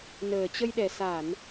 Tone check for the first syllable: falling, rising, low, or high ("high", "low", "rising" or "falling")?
low